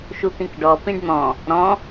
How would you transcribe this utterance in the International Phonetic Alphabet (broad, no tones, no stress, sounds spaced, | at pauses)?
ʃ u t̪ ĩ k ɖ ɔ p ĩ ɖ n̪ ɔ̃ | ɾ ɔ̃